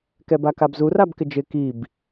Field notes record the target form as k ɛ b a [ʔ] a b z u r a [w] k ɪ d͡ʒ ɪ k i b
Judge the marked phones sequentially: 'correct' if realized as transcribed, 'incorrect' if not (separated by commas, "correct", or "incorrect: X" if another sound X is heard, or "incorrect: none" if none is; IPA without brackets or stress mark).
incorrect: k, incorrect: b